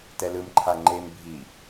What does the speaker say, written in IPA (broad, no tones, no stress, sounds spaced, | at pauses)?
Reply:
t ɛ l ɯ m ǃʰ a ŋ͡ǃ e m bʱ i